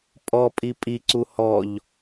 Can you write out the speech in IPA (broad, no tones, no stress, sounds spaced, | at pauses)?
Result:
pʼ ɔ pʼ i pʼ i ǀ u h ɔ ʎ